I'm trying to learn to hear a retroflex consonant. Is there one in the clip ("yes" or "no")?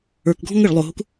yes